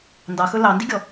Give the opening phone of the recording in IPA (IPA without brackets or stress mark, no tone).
n